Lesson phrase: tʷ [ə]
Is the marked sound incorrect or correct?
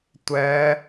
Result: incorrect